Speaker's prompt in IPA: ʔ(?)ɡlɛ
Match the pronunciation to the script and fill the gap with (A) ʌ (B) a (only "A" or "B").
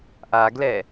B